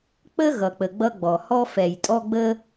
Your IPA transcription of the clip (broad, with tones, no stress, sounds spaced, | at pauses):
k͡p ə˦ ɣ ʌ˨ k͡p ə˨ ɡ͡b ʌ˦ ɡ͡b ɔ˨ h ɔ˦ f ɛ˨ j tʼ ɔ˦ ɡ͡b ə˦